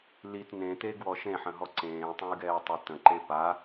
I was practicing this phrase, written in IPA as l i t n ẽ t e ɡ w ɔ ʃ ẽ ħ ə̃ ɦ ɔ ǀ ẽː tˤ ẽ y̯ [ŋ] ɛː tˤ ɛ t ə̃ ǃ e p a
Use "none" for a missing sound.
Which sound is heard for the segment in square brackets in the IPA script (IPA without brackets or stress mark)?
ɡ